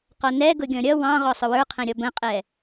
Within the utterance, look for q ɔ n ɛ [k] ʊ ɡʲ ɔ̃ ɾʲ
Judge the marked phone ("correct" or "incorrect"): incorrect